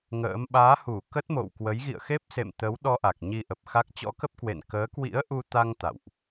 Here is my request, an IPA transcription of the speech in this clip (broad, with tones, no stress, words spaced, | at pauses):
ŋə̰ː˧˥m ɓaː˨˦hu˧˩ kə˦˥t̚mo̰˧˨wkwə˨˦j ɣḭ˧˨ə̯xe˦˥p̚ sḛ˧˨mt̪ə˨˦wɗɔ˧ ʔa˨˩k̚ɲi˧ʔə˨˩p̚xa˦˥k̚ t͡ɕɔ̰˧˥kə˦˥p̚kwḛ˧˨n kəː˨˦kwḭ˧˥ə̯ʔu˧t̪a˧ŋ t̪a̰˧˨wʔ